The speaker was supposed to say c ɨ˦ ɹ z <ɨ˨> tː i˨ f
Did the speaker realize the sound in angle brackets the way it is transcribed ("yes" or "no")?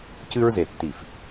no